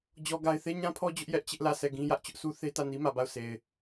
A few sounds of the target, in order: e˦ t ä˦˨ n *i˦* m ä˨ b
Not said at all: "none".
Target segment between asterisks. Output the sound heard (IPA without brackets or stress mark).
i˦